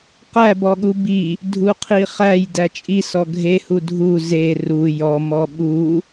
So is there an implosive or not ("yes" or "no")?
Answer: yes